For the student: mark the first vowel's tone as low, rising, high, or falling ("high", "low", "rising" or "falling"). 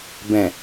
low